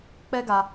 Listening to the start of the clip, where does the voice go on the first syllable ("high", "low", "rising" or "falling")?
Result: high